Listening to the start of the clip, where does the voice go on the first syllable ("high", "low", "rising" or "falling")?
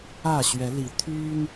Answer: falling